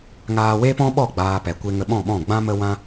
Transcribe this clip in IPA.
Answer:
ŋ aː˧ w e˦ p ɔ̃˦ ɓ ɔ˦˨ ɡ͡b aː˧ p ɛ˨ kʷ e˧ ŋ ə˧ ɓ ɔ̃˦˨ ɓ ɔ̃˦˨ ɡ͡b ã˦ m ə˦ w ã˦

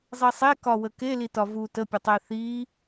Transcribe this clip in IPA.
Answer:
zˤ i sˤ e k ɒ w ə k e l i t ɒ v u t ə pʲ ə tˤ e θ i

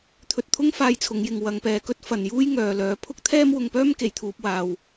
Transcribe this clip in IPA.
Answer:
t̪ʰ ɵ˧ t̚ t̪ʰ ʊ˥ ŋ f aː˧ j t͡sʰ ʊ˨˧ ŋ j ɪ˨ ŋ w ɐ˨˧ ŋ p ɛː˨ k ɵ˥ t̚ f ɐ˨ n j uː˥ j ŋ œː˨ l œː˨˧ pʰ ʊ˥ k̚ t̪ʰ ɛː˥ m w ʊ˧ ŋ p œː˥ m k e˨ j t̪ʰ uː˧ p̚ w aː˧ w

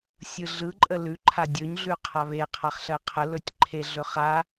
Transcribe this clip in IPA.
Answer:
sʲ ɯ ɮ ɯ ǃʼ ə l ʉ ǃʰ a dʲ ɵ ɲ ɮ ʉ qʰ a β e qʰ a χ ɬ ɜ qʰ ə l ɵ tʲ ǃʰ e ɮ ɵ χ a

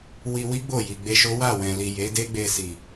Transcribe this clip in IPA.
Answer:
w i˧ w i˦ ɡ͡b o˦˨ j i˨ ɡ͡b e˧ ʃ o˦ w a˦˨ w ɛ̃˨ l i˨ j e˨˦ d e˦ ɡ͡b e˧ s i˨

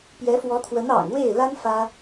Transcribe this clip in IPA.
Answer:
p j ɛ˧˥ f w ɔ˧˥ t̪ʰ w ə˧˥ n ɑ̰˨˩ ŋ w e˥˩ ɪ̯ l a˥ n f ä˥

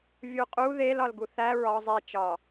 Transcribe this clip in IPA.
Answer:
vʲ u qʼ u ð e l ɒ l ɡ u θ æ ɹ ɒ zˤ e t͡ʃ ɒ

